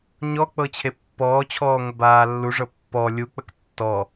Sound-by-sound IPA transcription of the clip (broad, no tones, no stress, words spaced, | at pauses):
ɲɔ k͡pɤt͡ɕʰepːɔːt͡ɕʰɔː ŋʷəbaːlːuʐɤ pːɔ lʲuk͡pək tːɔ